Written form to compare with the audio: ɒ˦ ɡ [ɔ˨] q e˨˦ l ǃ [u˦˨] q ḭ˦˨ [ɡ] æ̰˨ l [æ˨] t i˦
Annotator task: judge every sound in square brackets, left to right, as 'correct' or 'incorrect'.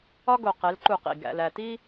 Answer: incorrect: o˨, correct, correct, correct

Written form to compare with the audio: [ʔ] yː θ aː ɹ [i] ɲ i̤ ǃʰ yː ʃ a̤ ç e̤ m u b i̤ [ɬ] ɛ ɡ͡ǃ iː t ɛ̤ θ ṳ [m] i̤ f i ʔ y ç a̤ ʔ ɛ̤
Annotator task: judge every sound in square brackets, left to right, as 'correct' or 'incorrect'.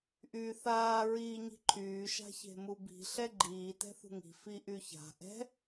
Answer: correct, incorrect: iː, correct, incorrect: ŋ

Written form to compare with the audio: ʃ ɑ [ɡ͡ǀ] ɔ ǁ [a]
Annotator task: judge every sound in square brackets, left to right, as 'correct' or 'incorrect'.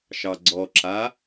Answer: correct, correct

